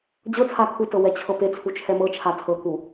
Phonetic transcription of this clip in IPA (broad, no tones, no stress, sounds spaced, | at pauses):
d͡ʑ ɤ t͡sʰ a kʰ u t ɤ w ɛ t͡ɕʰ ɤ p e t͡sʰ u t͡ʃʰ ɛ m ɤ t͡ʃʰ a tʰ ɤ k u